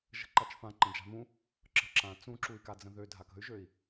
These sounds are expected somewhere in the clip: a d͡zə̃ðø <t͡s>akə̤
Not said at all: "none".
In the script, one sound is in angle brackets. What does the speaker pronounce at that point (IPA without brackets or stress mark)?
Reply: dʱ